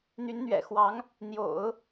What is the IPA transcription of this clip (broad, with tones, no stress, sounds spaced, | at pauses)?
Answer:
n̪ y˧˥ n n̪ ɥ ɛ̰˨˩ x w ɑ˧˥ ŋ | n̪ j o̰˨˩˦ ʊ̯